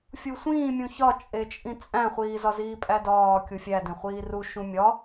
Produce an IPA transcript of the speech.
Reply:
fʲ u sʷ ĩː mʲ ũ ç ɒ t͡ʃʼ e t͡ʃʼ ĩ t͡sʼ æ̃ χʷ iː z ɒ z iː pʼ æ d ɒː kʲ u fʲ æ d ẽ χʷ iː r u ʃ ũ mʲ ɒ

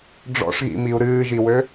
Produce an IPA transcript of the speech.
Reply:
ɖ͡ʐ ɔ̰ ʂ ɣ ḭ m i u̯ ɾ ɨː ʒ i w ø

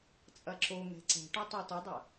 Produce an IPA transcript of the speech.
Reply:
t͡sʼ ɐ ǁ o ŋ ɛ̤ ǀ ɛ̤ ʈ o tˤ o t ɐ dˤ ɐ

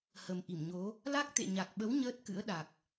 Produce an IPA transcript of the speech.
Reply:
h ə˨˩ m ʔ i˧˩ m ɲ o˨˦ | l a˦˥ k̚ t̪ ḛ˧˨ ɲ a˨˩ k̚ ɓ ə˨˦ w ɲ əː˦˥ t̚ k ɨ̰˧˥ ə̯ ɗ a˨˩ k̚

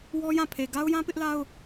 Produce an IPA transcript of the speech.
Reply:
w ɔ˦ j ã˦˨ pʰ e˨ ɡ a˦ ʊ̯ j ã˦ p ɪ˦ ʔ l a˦ ʊ̯

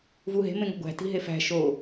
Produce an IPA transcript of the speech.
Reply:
v u ɦ e̤ m ẽ ŋ o̤ ɡʷ æ̤ t i̤ ɦ e f æ̤ ʃ o

